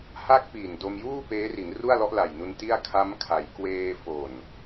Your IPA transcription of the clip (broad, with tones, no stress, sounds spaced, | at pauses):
h a˥˩ k̚ p iː˨˩ n d o˧ m j uː˥˩ p eː˦˥ r i˩˦ n r u˥˩ a̯ l ɔ˦˥ ʔ l a˨˩ j n u˧ n t i˥˩ a̯ kʰ a˦˥ m kʰ a˩˦ j k w eː˧ f o˨˩ n